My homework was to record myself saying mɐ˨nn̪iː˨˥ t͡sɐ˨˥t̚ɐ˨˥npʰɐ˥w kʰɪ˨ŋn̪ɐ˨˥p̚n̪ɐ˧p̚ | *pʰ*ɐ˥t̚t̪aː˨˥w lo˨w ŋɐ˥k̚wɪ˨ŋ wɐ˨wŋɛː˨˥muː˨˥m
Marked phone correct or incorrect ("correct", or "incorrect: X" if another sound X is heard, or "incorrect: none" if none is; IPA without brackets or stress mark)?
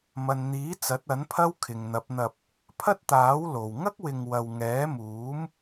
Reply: correct